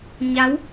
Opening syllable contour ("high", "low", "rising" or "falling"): rising